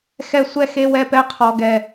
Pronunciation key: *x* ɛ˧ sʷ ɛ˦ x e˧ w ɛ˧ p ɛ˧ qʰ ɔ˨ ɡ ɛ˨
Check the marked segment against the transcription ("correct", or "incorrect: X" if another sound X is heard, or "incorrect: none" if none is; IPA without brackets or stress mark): correct